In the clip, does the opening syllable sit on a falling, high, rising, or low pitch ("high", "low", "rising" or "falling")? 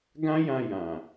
high